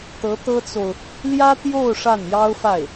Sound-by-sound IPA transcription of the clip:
t̪ɤ˧˥t̪ɤ˥t͡so˨ʊ̯ | ljä˥t̪jo˥˧ʊ̯ ʂa˥˩njɑ˥ʊ̯fa˥˩ɪ̯

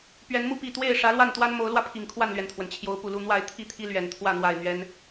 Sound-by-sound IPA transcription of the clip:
pɥɛ˨˦nmu˥˨pi˥˨ t̪we˥˨ɪ̯ ʂä˨˦lwa˥˨nt̪wa˦n mo˨˦ʊ̯lwä˧pʰi˨˩ŋ kʰwa˥˨nlɥɛ˩nt̪ʰwə˩n t͡ɕʰjo˨˦ʊ̯pu˨˩lu˥˨ n̪wa˥˨ɪ̯ t̪ʰi˥˨t̪ʰi˦ lɥɛ˨˩nt̪ʰwä˥˨ n̪wa˨˩ɪ̯ n̪ɥɛ˦n

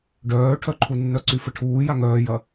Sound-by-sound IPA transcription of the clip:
ɖœːʈʰœǃʰunːœ ǀyfəʈʰuːja ŋœːjɐ

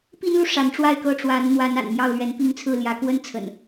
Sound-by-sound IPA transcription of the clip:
pi˦nlu˨ ʂa˨˦nʈ͡ʂwa˥˨ɪ̯kɤ˥˨ ʈ͡ʂwa˨˦nn̪wa˨˦n a̰˨˩n mjɑ˥˨ʊ̯lɥɛ˨˦npi˥˨ŋt͡sʰɹ̩˥˨ ljä˨˦kwə˦nt͡sʰə̰˨˩n

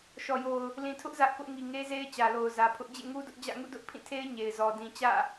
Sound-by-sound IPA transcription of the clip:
ʃɔ˨jo˨ʊ̯ | lĩ˨tʰʊ˦ʔ zä˦ʔkʊ˦ʔ ŋi˨ŋe˦ze˦ɪ̯ t͡ɕä˨lo˨ʊ̯zä˨pʰʊ˦ʔ d͡ʑḛ˦˨ŋu˦dʊ˦ʔd͡ʑä̰˦˨ ŋṵ˦˨dʊ˦ʔpʰĩ˦˨tʰe˦ɪ̯ ɲe˨ɪ̯zɔ˨ dĩ˨t͡ɕä̰˦˨

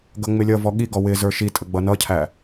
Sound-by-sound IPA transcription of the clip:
ɡʌŋ͡mɪlʲʌvɔ ɠiɡɔ wɪ zə˞ʃitʼə ɡ͡bʌnʌcʰæ

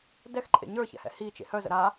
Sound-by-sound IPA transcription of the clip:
dɛxǃʼḛ ɲə˞çɛ̰hɛ̰ hit͡ʃḛ hœzə̰ ɾa

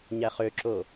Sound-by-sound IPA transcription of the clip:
ɲæχøǁo

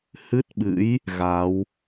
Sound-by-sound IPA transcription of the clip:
hɨ˦˥t̚ɓɨ̰˧˥j | ɣa˨˦w

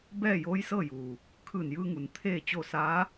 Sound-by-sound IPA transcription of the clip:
bɛː˥˨joː˧˥jsɤː˥˨juː˩ | kʰɯː˧˩njɯː˧ŋu˩n t̪ʰeː˥˨t͡ɕo˥˨ saː˧˥

